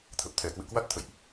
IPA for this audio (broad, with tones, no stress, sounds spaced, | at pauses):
t̪ʰ ə˨˩ p̚ t̪ʰ ɛ˧˩ k w ɨ̰˧˨ k w a˦˥ t̚ t̪ʰ ə̰˧˨ j ʔ